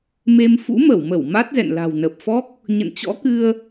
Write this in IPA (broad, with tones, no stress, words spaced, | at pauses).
me˧m fṵ˧˥mə˧˩wmə˧˩w ma˦˥t̚zɛ̰˧˨n la̤˨˩wnə˨˩p̚fɔ˦˥k̚ | ɲə̰˧˨nt͡ɕɔ̰˧˥kɨ˧ə̯